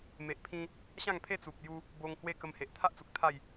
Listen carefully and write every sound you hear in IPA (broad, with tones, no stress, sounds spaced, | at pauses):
m e˨ ʔ pʰ ĩ˧ | ɕ ã˥˧ ŋ pʰ e˦ t͡s u˨ p̚ j u˧ | b o˧ ŋ h w e˦ k ə˧ m h e˨ ʔ t̪ʰ a˦ ʔ t͡s u˨ k̚ t̪ʰ a˥˧ j